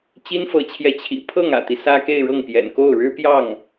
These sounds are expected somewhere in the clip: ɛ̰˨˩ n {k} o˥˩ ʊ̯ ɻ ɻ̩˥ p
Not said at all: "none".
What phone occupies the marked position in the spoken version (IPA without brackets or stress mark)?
k